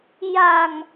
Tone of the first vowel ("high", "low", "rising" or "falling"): low